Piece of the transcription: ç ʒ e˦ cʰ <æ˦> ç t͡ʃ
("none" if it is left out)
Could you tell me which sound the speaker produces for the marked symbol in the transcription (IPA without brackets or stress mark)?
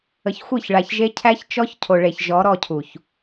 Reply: æ˦